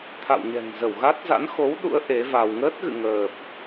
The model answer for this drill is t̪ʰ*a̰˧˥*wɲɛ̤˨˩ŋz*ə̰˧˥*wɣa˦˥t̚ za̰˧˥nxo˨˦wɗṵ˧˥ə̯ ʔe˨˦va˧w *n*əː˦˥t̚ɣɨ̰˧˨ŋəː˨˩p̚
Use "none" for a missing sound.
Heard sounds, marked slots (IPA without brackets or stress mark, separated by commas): a̰˧˨, ə˧˩, ŋ